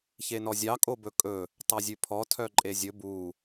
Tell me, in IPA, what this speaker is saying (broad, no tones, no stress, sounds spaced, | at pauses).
ç e n ɔ zʲ ɑ kʼ o b ɵ kʼ ɵ | tˤ ɑ zʲ ʉ pʰ ɔ tʰ œ ǃʼ e zʲ ɵ b u